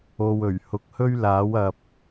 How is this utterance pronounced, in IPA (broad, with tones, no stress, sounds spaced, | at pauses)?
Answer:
o˨ w ɵ˨˩ ɥ h ʊ˨˥ k̚ h ɵ˥ ɥ l aː˨˥ w ɐ˨ p̚